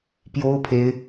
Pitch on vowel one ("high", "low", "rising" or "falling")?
high